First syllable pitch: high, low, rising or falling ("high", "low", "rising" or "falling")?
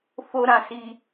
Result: high